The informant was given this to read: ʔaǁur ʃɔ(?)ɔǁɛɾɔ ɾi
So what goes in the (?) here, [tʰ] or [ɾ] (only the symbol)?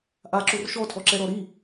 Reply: tʰ